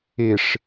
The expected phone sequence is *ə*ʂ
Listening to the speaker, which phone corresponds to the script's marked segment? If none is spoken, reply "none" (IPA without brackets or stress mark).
ɪ